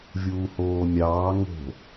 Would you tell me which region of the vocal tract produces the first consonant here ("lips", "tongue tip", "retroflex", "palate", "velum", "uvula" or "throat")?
lips